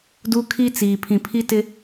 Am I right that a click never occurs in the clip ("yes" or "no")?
yes